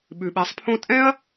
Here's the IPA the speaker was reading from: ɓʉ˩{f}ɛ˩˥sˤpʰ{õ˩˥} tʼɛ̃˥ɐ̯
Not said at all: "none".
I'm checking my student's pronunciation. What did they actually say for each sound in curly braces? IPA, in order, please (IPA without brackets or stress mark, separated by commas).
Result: ɓ, õ˥